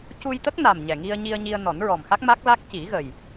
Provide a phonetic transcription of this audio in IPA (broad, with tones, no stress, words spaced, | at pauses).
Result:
cu˧jt̪ə˦˥k̚na˨˩m ɲɛ˨˩ŋi˧ə̯ ɲi˧ə̯ɲi˧ə̯ nɔ˨˩˦nɹɔ˨˩mxa˦˥k̚ ma˦˥k̚la˦˥k̚ ci˨˩˦ɣə˨˩j